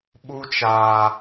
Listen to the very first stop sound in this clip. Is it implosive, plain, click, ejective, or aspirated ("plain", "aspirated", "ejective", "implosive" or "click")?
implosive